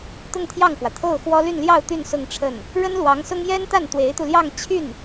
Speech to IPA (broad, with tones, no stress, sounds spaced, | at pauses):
t̪ ʊ˥˧ ŋ t̪ʰ j ɑ˥˩ ŋ k w ä˩ t̪ʰ o˥˩ ʊ̯ x w ɔ˥ l y˥˧ n l j ɑ˥˧ ʊ̯ t̪ y˥˧ n s ʊ˥˧ ŋ ʈ͡ʂʰ ə˥˩ n | ɻ ə˥ n l w ɑ˧˥ ŋ s ʊ˥ ŋ j ɛ˥ n t̪ a˥˩ n t̪ w e˧˥ ɪ̯ t̪ u˧ l j ɑ˥˧ ŋ t͡ɕʰ y˥˩ n